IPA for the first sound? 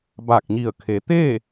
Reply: b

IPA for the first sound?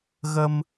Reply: ɣ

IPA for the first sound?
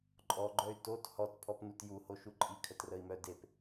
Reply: ǃʼ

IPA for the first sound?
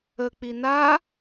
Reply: ə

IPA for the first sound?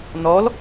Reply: n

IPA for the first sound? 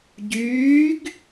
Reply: ɟ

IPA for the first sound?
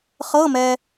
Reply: χ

